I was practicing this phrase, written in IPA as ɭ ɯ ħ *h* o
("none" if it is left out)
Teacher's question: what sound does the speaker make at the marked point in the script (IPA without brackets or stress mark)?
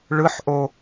ʔ